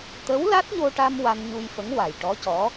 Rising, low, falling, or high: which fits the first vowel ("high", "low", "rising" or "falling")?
rising